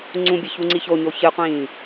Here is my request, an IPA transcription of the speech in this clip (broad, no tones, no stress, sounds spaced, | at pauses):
ŋ͡ǀ ũ bʲ ɐ ç u ŋ͡ǀ i ç o ɲ o ç ɨ qʷ ĩː